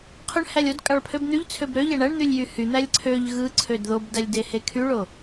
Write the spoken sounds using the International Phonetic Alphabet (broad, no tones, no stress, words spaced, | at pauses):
qʰøɳ hælʲodkʼɑɭ pʰøbn̪yʎt͡sʰøb ɾøʎæ ɳæɳn̪ylʲ jyhyn̪ælʲ ǀʰøʎ ɣɯǀʰød ðobdælʲ dehekʰyɭo